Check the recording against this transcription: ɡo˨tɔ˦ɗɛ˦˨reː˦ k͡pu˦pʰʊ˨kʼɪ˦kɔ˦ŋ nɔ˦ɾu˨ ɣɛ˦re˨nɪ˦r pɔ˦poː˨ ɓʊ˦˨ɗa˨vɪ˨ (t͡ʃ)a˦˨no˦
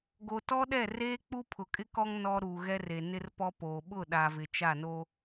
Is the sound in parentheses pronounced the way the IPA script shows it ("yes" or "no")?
yes